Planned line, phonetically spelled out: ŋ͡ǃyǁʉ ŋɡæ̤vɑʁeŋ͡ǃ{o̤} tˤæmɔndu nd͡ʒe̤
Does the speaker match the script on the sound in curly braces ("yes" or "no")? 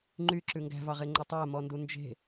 no